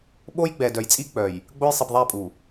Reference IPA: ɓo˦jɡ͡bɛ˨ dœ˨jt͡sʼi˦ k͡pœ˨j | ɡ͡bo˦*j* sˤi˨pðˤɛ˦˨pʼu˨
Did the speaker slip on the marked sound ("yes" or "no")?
no